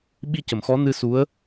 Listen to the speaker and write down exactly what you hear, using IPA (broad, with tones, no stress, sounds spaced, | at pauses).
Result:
ɓ i˧ c ə˨˩˨ m x ɔ˧˥ n ɨ˧ s u˧˥ ə̯